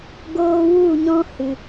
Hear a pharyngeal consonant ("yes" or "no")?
no